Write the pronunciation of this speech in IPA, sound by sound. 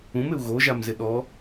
ũ m ɪ u̯ ɣ o ʒ a m z ɪ ɗ ɔ

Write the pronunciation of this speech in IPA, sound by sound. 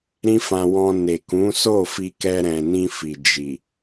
ɾ ĩ˦ f ã˧ w ɔ̃˧ n e˨ k ũ˨˦ s o˦˨ f i˧ k ɛ˧ ɾ ɛ̃˨ n ĩ˧ f i˨ d͡ʒ i˨

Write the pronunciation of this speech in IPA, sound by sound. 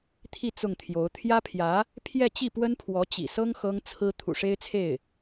t̪ʰ i˥˧ t͡s ʊ˥˩ ŋ t̪ʰ j o˧˥ ʊ̯ t̪ʰ j ä˥ pʰ j ä˧˥ | pʰ j ɛ˥˧ t͡ɕ i˥˩ p w ə˥ n pʰ w ɔ˧˥ t͡ɕ ḭ˨˩ s ɤ˥ ŋ x ɤ˥ ŋ t͡sʰ ɹ̩˥ t̪ʰ ṵ˨˩ ʂ e˥ ɪ̯ t͡sʰ e˥˩ ɪ̯

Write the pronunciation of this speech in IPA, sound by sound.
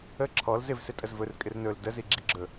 ə ǁʰ ɔ l z ɪ v s ɪ tʼ ə z v ɵ r kʼ ɪ r n ɵ l d ə z i ɡ͡ǁ i ɡ͡ǁ ɵ

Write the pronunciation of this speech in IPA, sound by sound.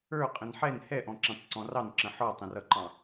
ə˞ qʼ ə̃ n ħ ɛ n h ɛ ʔ ɔ̃ ǁ ĩ tˤ ǀ ɔ̃ r ɑ n ǁ ə̃ ħ ɔ tˤ ə̃ r ʌ ǃ ɑ̃

